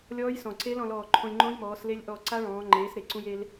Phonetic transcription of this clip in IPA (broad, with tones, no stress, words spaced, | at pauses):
lʲɔː˦˥jsɔ̃˨˩ ǀe˦˥lɔ̃˩˧lɔː˨˩ ǃʰõ˧lʲŋ͡ǃõ˦˥jmɔː˩˧s le˧lʲ ʔɔ˨˩ ǀa˦˥ɭɔ̃ː˩˧ ŋ͡ǃeː˩˧s ɾe˩˧ǀũ˧je˧l